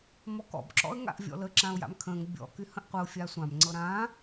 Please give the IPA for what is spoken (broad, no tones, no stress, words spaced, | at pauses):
mɔkɔ̰b ǁɔ̰ə̯ŋa̰ʔvʲɔ̰lə ǁãʊ̯ja̰mkʰə̃ːŋ bʲɔ̰ kyhə̃ʔqʷəʊ̯ fʲasʷãm ŋ͡ǀɤɾãː